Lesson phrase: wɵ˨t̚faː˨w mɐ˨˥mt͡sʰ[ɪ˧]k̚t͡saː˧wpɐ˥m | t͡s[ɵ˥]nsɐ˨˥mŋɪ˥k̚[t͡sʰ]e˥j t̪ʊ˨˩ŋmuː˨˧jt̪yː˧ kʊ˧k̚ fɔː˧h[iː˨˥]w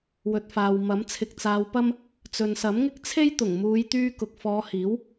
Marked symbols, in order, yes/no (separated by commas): yes, no, yes, yes